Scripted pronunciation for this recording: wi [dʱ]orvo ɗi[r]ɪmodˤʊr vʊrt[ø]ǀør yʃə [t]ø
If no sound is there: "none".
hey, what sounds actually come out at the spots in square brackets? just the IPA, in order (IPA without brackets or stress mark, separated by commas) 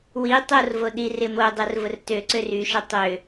tˤ, r, ø, tˤ